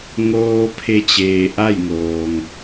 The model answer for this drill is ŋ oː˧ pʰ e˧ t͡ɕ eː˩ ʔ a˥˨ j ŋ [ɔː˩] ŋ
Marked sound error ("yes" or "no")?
yes